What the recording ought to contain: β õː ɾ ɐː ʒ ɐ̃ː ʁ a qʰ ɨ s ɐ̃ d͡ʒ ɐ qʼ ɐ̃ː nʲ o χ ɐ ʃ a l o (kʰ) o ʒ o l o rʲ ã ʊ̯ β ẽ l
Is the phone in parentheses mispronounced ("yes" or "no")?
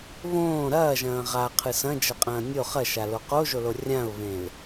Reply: yes